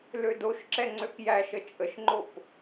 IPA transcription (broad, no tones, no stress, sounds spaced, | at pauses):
l ø d o ʃ ǁ ɛ ŋ͡ǀ ø k j æ ʃ ə t͡ʃʼ ə ʃ ŋ͡ǃ o p